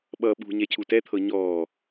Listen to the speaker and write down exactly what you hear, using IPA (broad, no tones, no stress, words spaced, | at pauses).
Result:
ɓʌ ɓṳ ɲɛcʰutɛ t̪ʰɤɲɔː